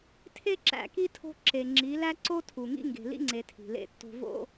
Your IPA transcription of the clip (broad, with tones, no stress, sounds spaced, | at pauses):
tʰ e˦ ǁ æ̰˨ k i˦ tʰ o̤˦ ǁ e˨ ŋ͡ǁ i˨˦ l æ˦ ǀ o˦ tʰ u˨ ŋ ḭ˦ ŋ ɡ e̤˨ l ḭ˦ ŋ͡ǀ e˨ tʰ i̤˨ l ḛ˦ tː o̤˦ v o̰˦